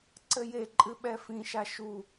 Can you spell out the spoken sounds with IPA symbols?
ǀ ɘ j e ǃʼ ɨ ɓ ɛ f ĩ ʃ a ʃ u

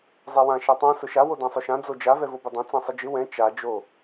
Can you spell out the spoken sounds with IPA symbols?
zˤ ɛ w ã ʃ a tˤ ã s ʊ ʃ a w o d ã sˤ ʊ ʃ ã d͡z o d͡ʒ a v ɛ v o b ɘ dˤ ã t͡s ã sˤ ɘ d͡ʒ ɪ w ɛ̃ t͡ʃ a d͡ʒ o

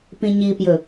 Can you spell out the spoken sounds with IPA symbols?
p ĩ ɲ i p j ɵ

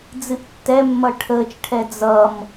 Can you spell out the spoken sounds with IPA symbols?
d͡z ɨ ʔ tː ɛ mː ʌ ʈʰ əː t͡ʃ ʈʰ ɛ d͡z ʌ m

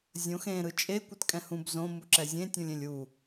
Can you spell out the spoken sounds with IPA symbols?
zʲ õ x ẽ ɾ ɯ t͡ʃʼ e kʷ ɯ t kʼ ɛ̃ h ũ b z õ m u ǁ ɛ zʲ ẽ tʲ ũ lʲ ẽ lʲ u

